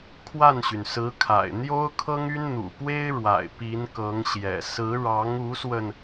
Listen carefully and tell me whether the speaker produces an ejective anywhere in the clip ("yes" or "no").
no